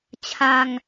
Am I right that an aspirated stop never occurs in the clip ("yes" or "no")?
no